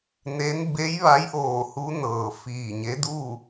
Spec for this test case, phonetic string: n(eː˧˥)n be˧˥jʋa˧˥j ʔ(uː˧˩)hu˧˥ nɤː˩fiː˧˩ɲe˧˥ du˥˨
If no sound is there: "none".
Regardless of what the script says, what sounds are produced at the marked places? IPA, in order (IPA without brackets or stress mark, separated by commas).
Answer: e˧˥, oː˧˩